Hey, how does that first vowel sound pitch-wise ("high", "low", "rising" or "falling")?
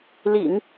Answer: low